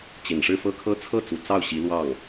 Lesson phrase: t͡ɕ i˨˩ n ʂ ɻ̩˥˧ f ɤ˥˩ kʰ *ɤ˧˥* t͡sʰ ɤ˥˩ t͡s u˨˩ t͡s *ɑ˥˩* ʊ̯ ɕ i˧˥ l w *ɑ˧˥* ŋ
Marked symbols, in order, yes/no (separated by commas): no, yes, no